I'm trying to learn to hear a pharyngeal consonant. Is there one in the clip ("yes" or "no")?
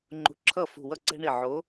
yes